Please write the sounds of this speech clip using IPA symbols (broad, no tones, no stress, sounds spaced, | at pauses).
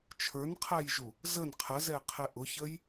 t͡ʃʰ ə˞ n qʰ æ j ʒ u | z ə n qʰ ə z ɛ qʰ ɪ ʔ ʊ ç ə j